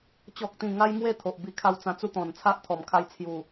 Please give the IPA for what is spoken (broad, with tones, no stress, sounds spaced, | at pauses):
t͡ɕ ɔ˨ k̚ t̪ ĩ˨˩ ŋ a˧ j m w e˧ t̪ʰ o˨ ʔ b i˧ kʰ a˦ w t͡s ã˧ t͡s u˦ t̪ ɔ̃˨˩ n t͡sʰ a˦ ʔ t̪ʰ ɔ˨˩ m kʰ a˧ j t͡sʰ j u˨˩